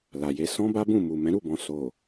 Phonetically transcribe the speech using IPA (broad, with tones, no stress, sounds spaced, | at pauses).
l a˨ j e˧ s ɔ̃˦ b a˦ b ũ˦˨ m u˨ m ɛ̃˨˦ ɾ u˦˨ b ɔ̃˨ s o˨